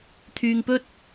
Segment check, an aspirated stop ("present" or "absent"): present